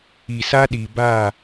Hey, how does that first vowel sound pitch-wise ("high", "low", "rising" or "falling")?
low